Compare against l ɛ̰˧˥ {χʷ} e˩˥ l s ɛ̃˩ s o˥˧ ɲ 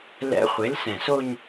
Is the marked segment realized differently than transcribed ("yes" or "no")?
no